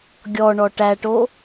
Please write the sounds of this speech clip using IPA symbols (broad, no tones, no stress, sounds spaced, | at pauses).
ɡʲ ɔ ɳ ɔ ʈ æ ʈ o